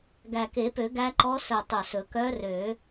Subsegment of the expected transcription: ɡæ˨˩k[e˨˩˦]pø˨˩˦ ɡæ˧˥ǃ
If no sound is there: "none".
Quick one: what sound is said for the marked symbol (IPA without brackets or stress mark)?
e˨˩˦